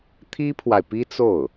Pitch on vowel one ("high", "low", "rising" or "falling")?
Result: high